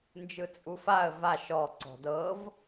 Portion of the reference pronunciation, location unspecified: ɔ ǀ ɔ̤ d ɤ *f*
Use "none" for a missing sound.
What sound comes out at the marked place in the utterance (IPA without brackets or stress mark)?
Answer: v